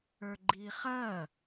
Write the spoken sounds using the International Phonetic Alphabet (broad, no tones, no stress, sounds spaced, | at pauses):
ə˞ ɡ͡ǃ iː χ ɐː